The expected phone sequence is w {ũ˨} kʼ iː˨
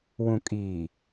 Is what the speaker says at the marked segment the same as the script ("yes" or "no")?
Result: yes